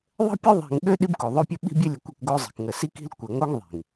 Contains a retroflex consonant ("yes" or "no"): no